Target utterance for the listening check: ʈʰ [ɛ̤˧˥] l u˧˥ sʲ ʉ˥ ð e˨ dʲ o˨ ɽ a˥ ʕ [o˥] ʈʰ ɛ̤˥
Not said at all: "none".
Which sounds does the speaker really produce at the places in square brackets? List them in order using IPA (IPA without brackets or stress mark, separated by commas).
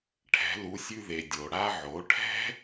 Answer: ɛ̤˧˥, o˩˥